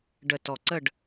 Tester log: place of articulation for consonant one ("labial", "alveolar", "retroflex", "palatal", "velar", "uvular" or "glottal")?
retroflex